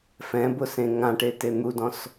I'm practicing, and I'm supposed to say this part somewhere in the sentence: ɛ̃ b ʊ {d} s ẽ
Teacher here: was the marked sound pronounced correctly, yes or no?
no